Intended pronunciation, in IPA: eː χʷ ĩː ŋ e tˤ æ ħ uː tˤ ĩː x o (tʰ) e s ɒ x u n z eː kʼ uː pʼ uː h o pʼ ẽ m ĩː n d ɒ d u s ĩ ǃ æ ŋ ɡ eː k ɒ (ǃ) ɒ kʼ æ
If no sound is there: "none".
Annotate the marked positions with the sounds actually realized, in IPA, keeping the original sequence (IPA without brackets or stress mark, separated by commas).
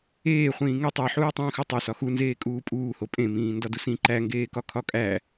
tˤ, kʰ